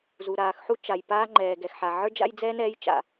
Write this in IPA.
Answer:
z u˩ ɾ aː˩ x ħ u˥ t͡ʃ a˩ j p aː˥ ŋ͡ǃ ɛː˩ ɡ ɛ˩ x ħ a˩ ʕ ə˞˥ d͡ʒ a̰˥ j d͡z ɛː˥ n ɛː˥ j t͡ʃ a̰˩

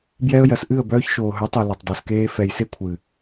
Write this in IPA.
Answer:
b j ɛ˧ ə̯ j ɜ˨ s ʔ ɨ˦˨ ə̯ b œː˧ ç ʃ oː˨ ɦ œ˨˦ tˤ u˨ l ɛ˨ tˤ dˤ e˨ s k eː˧ f ɛ˨ j s e˦ kʷʰ ɨ˨

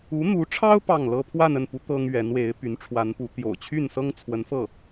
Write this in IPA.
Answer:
u˧˥ n̪ u˧˥ ʈ͡ʂʰ ɑ˥ ʊ̯ p ɑ˥˩ ŋ l ɤ˥ pʰ w a˥˧ n ə˥˩ n p u˧˥ t̪ ɤ˥ ŋ ɥ ɛ˧˥ n w e˧˥ ɪ̯ p y˧˥ n ʈ͡ʂʰ w a˧˥ n p u˧˥ t̪ j o̰˨˩ ʊ̯ t͡ɕʰ y˥˩ n s ɤ˥ ŋ t͡sʰ w ə˧˥ n f ɤ˥˩

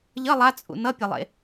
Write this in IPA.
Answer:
ʎ ʌ lˠ a t͡sʼ ṵ n ʌ pʲ ʌ lˠ ḛ

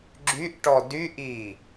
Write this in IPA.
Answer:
ɡ͡ǁ y ʔ ʈ ɔ d y ʔ i

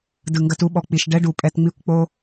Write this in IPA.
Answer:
d ɯ˨ ŋ ɡ ɐ˧ t u˧ ɓ ɔ˨ k͡p i˨ ʃ ɖ ɛ˦ ɖ u˨ pʼ ɛ˧ t ŋ͡m i˦ kʷ k͡p o˦

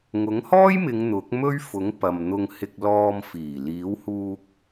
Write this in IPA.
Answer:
ŋ ʊ˨˥ ŋ h ɔː˥ j m ɪ˨˧ ŋ n̪ ʊ˨˥ k̚ m ɵ˥ ɥ f ʊ˨˥ ŋ p ɐ˨ m n̪ ʊ˧ ŋ h ɪ˧ k̚ l ɔː˧ m f iː˨˩ l iː˨˥ w h uː˧ k̚

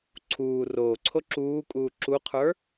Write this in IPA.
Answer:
ǀʰ uː r oː ǀʰ o ǁ uː kʼ uː ǁ u qʰ ə˞

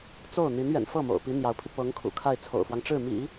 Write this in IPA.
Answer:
t͡s o˥˩ ʊ̯ n̪ i˧˥ n ɥ ɛ̰˨˩ n f ɤ˥˩ m o̰˨˩ ʊ̯ p i˧˥ n̪ j ɑ˧˥ ʊ̯ pʰ i˧ p ɤ˧˥ ŋ kʰ ṵ˨˩ kʰ a˥˩ ɪ̯ t͡sʰ o̰˨˩ ʊ̯ f w ɑ˦ ŋ ʈ͡ʂ ɻ̩˥˩ m ḭ˨˩˦

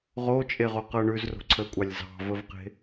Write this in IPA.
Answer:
ʁ o t͡ʃʼ e ʁ o q ɤ ɳ ʉ z r o̤ ǀʰ əː kʷʼ ɑ lʲ z ɑ̤ v ə v q e̤

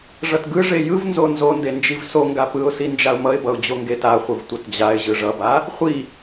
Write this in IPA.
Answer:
ʐ ʌ t ɡ ɯ ʐ e j ɯ v n z o n z o n d e n d͡ʒ i v s o ŋ ɡ a p ɯ ʊ̯ s i n d͡ʒ a ʊ̯ m ʌ ɪ̯ b ʌ ʊ̯ d͡ʑ o ŋ ɡ e t a χʷ ɯ v tʷ ʌ t d͡ʑ a ɪ̯ ʑ ɯ ʐ ʌ b a | χʷ i

